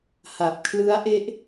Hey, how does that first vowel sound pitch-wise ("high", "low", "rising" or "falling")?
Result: low